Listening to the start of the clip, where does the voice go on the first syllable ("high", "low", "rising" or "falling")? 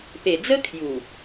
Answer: low